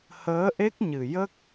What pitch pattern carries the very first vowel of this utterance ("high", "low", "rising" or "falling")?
rising